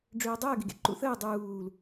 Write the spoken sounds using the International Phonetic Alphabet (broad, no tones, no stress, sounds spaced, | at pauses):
ɖ͡ʐ øː dˤ əː ɡ e ɡ ḛ ǃ ṵ θ əː dˤ uː l